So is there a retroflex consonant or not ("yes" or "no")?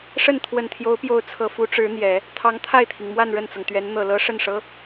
yes